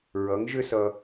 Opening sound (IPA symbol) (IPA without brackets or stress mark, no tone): ɹ